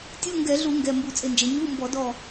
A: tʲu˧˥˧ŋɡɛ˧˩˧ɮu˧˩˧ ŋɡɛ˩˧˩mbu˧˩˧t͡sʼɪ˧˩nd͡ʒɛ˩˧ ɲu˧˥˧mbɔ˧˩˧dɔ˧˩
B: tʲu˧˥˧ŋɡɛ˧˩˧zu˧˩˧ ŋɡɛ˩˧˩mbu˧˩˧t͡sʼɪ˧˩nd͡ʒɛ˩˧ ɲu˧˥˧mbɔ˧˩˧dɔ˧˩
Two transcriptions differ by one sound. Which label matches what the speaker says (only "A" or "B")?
A